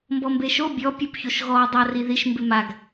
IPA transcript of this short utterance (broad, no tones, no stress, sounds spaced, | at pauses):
m b ɔ m b e ʃ o bʲ ɔ pʲ o p ç o ʃ ɣ ɔ dˤ a r i ð i ʃ m b ɪ m a ɡ